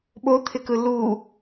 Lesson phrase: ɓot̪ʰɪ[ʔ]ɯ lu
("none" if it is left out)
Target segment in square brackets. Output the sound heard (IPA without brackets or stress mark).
k